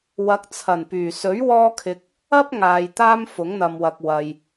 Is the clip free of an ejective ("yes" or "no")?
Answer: yes